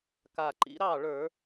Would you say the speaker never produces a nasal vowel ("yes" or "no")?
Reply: yes